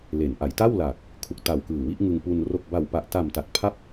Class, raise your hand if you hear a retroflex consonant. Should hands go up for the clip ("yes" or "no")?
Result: no